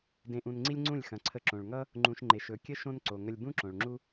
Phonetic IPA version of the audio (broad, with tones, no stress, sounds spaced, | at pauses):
d ẽ˧ ʔ ũ˧ n ŋ͡ǀ i˦ lʲ ŋ͡ǀ ũ˦˨ lʲ x ɐ̃˨ ǀʰ ə˧ ǁ õ˨ ɭ ŋ ʌ˦ | ŋ͡ǃ ũ˨ ʃ ŋ͡ǃ e˨ ʃ ɵ˨ kʲ ə˦ ʃ õ˦ n ǀ o˨ ŋ ə˧ lʲ b ũ˦ ǁ õ˨ ɭ ŋ͡ǁ u˦